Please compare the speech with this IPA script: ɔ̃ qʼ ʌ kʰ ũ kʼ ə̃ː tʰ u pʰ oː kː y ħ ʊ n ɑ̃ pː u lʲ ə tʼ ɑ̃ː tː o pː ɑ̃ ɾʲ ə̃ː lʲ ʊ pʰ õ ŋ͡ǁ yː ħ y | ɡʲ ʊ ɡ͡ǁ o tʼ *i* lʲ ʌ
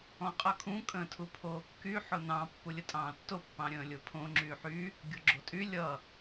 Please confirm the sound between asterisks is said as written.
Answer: no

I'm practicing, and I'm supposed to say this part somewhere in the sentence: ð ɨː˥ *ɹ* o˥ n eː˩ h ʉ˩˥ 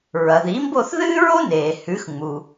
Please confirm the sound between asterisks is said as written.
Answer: yes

